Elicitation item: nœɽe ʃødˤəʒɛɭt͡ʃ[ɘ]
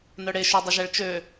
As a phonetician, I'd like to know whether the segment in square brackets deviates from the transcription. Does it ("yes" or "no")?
yes